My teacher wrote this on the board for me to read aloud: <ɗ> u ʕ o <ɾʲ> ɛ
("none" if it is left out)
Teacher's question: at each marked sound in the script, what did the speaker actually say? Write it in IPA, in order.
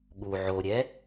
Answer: ɠ, ɾʲ

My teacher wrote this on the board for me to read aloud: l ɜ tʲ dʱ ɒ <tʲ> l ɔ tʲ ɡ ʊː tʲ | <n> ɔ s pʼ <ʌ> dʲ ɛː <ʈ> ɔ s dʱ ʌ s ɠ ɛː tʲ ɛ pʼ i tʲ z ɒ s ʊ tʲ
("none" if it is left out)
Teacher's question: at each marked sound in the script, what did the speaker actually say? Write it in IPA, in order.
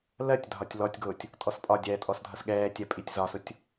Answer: tʲ, tʼ, ɒ, tʼ

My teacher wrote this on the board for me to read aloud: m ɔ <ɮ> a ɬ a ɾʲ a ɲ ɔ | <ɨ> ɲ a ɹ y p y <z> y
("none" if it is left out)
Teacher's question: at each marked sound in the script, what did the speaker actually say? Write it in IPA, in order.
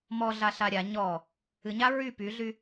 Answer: ɮ, ɨ, ɮ

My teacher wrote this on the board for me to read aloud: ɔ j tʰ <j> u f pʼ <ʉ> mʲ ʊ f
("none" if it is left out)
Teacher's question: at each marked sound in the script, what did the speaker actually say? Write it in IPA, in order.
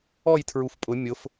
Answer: ɹ, ʊ

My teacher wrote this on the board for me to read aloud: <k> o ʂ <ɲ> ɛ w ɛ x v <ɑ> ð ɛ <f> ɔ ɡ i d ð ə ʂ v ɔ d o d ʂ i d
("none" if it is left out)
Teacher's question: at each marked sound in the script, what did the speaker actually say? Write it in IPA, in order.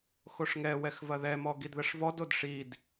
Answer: x, ŋ, ɐ, m

